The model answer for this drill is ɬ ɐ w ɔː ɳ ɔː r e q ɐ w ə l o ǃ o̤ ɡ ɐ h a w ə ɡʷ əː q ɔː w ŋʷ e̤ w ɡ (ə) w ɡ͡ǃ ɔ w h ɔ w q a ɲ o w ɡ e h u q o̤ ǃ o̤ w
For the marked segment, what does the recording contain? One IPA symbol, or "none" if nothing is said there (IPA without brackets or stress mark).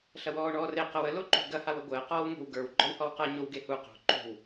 ə˞